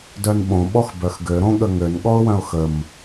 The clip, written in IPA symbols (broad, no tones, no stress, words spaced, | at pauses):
dœnɓõ ɓɔxbœxɡø ɾõɠəŋøn ɠɔʊ̯wœ̃ʊ̯xəm